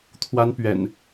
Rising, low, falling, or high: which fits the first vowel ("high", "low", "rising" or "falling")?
high